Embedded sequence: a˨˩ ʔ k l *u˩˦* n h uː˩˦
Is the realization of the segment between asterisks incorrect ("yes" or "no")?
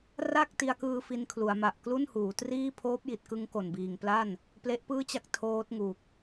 yes